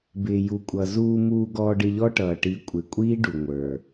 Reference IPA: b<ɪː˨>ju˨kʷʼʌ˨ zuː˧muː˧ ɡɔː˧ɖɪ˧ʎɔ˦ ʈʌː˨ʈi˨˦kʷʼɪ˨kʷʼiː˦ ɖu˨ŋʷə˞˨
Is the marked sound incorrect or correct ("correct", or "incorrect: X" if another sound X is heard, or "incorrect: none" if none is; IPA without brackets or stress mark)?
correct